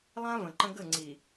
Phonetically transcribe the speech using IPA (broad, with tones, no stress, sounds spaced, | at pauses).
lˠ ã˦ v ə̃˨ ǃ ə̃˦ ɡ ə˦˨ ŋ͡ǀ i˨